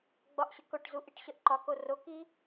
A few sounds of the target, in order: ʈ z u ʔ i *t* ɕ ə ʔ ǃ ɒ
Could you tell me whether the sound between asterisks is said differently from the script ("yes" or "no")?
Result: yes